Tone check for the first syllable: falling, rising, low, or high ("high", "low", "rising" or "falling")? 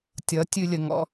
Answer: rising